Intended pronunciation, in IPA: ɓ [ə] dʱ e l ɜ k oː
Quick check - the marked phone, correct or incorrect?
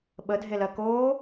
correct